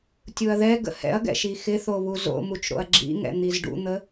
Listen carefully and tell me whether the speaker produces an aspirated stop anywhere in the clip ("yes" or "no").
no